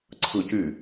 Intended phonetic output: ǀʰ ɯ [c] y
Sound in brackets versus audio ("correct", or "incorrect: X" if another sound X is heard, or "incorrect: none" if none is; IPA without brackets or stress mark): correct